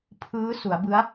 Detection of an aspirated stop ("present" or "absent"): present